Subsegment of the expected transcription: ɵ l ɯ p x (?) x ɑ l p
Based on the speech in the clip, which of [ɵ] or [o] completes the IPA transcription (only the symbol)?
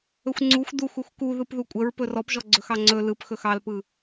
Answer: ɵ